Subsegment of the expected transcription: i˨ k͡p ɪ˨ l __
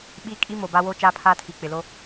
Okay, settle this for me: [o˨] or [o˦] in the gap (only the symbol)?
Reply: o˦